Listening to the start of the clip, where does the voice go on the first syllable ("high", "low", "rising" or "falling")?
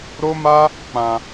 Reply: high